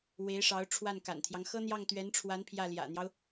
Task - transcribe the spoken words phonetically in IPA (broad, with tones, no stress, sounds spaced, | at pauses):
w e˧˥ ɪ̯ ʂ ɑ˧˥ ʊ̯ ʈ͡ʂʰ w a˥˩ n k a̰˨˩ n t̪ʰ j ɑ˦ ŋ x ɤ˥ n̪ j ɑ˥˩ ŋ t̪ ɥ ɛ˧˥ n ʈ͡ʂʰ w a˧˥ n pʰ j ä˥˩ l j ä̰˨˩ n̪ j ɑ˦ ʊ̯